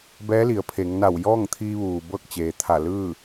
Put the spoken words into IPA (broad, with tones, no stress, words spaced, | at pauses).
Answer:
bɛː˧˥li˩˧ə̯ pʰe˩˧ŋna˧˩w jɔː˥˨ŋt̪ʰiː˧ʋuː˩ bɤː˥˨k̚t͡ɕeː˩t̪ʰa˧˩ lɯː˥˨